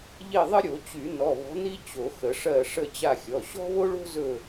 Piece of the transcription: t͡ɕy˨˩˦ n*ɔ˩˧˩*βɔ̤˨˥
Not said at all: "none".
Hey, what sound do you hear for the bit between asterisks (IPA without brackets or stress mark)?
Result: ɔ˩˧˩